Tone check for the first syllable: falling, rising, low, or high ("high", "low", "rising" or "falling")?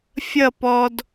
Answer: falling